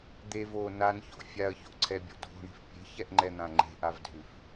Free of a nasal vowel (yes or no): no